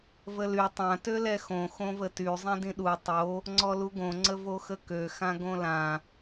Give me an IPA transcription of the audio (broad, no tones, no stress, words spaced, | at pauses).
vəly tˤã tølɛxõ xõvəty zˤẽdĩɗu tˤo | ŋ͡ǀɔluɡõ ŋ͡ǀəvoxəkø xãɡõlã